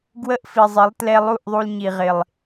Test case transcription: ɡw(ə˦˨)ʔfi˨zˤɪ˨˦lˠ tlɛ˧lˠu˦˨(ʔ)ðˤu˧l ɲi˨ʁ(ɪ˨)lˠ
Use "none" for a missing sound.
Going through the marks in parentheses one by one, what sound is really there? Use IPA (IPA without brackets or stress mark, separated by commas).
ə˦˨, ʔ, ɪ˨